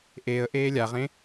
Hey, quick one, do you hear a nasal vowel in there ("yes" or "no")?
yes